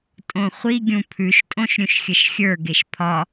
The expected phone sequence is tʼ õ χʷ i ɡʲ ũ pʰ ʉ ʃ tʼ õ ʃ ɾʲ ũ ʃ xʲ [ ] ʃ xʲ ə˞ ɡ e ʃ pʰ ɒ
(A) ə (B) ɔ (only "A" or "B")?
A